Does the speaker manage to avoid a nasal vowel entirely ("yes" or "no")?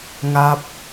yes